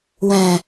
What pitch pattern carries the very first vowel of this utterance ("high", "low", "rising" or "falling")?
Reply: low